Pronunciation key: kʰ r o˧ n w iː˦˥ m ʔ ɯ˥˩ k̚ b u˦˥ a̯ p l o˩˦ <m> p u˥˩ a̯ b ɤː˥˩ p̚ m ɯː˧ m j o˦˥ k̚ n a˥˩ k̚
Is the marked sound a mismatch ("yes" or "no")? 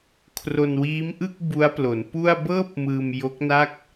yes